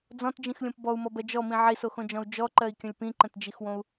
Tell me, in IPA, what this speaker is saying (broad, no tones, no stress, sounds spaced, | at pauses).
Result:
d͡z ɔ̃ t d͡ʒ ĩ x lʲ õ p b ɔ u̯ m ɔ b ɜ d͡ʒ ɔ m ĩ ʕ i s o x õ d͡ʒ ɔ̃ u̯ d͡ʒ ɔ ǃ ɜ i̯ kʲ ə̃ lʲ p ĩ ǃ ə̃ t d͡ʒ i x w õ u̯